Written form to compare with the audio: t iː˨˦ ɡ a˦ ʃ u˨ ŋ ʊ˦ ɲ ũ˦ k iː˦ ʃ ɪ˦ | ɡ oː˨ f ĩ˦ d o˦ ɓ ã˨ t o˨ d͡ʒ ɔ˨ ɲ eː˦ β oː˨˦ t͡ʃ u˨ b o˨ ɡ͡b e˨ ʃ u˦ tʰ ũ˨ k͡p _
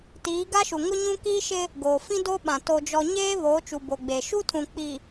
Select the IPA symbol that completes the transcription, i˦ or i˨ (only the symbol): i˨